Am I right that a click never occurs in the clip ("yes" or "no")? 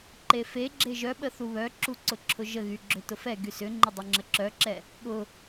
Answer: no